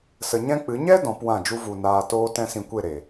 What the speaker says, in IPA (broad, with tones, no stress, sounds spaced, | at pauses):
s ə˧ ɲ ɛ̃˦ k͡p ɨ˨˦ ɲ ɛ˦ d ɔ̃˨˦ p w ã˦˨ d͡ʒ u˦ v u˧ n aː˧ t oː˦ t ɛ̃˦ s ĩ˧ kʷ e˦˨ ɾ e˨